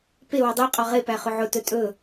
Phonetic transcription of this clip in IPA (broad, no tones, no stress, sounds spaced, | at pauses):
p e w ə dˤ i qʼ ɔ ʁ e p æ χ ʊ ʕ ʊ t ɵ tʼ ɵ